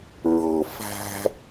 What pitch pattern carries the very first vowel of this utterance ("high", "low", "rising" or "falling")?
low